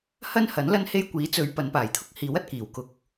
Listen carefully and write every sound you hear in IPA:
hɐ˥nhɐ˨˥n lɐ˥nhe˥j kʷiː˨˥t͡sɵ˨˧ɥ pɐ˨˧npaː˨˩jt̪ʰʊ˥k̚hiː˨˥w ɐ˧t̚kiː˨˩wkʊ˧k̚

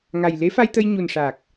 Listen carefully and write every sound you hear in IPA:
ŋa˨˩jle˧˥fa˧jt̪ə˧j ɲu˨˩nʂa˨˩k̚

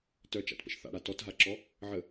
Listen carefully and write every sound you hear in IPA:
tœt͡ʃa̰tpə̰ʃ θa̰ɽa tɔtɦaǁɔ | ʕə

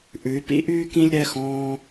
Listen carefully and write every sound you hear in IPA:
ʔʉ˧˥y̯pḭ˥ʔyː˥ kĩ˥lʲɾɛ˧˥˧xɔ̃ː˥

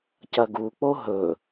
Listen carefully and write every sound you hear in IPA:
cɐɡuk͡po ɦɵ

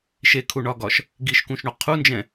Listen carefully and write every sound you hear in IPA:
ʃekʰuɳɒɡɒʃ | ɡiʃkũʃɳo qʰund͡ʒɛ̃

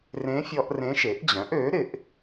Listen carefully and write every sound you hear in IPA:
rẽ˧˥fʲɔ˧ʔ rẽ˧˥ʃe˩˥ʔd͡ʑœ̃˩˥ʔ ø˩˥ ɾɪ˩˥ʔ

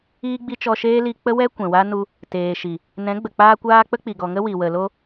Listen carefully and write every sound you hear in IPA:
iː˦ɡ͡bi˦ t͡ʃɔ˧ʃeː˦ li˧k͡pə˦wɛ˦ kʷɛ̃˨wa˦nu˧ | teː˨ʃi˨ | nɛ̃˨˦ɡ͡bə˨k͡paː˧kʷaː˧ k͡pə˦k͡pi˨ɡɔ˨ŋə˦ wi˨wə˨ lo˧

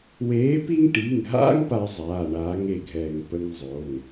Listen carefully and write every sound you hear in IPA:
weː˨˥pi˦ŋ ʈi˩˧˩ŋɦa̰˦ŋ pa˦zˤaː˩˧˩ɳaː˨˥ŋ e˧˩ɡʱɛː˧˩ŋpə˦ŋzˤo˩˧˩ŋ

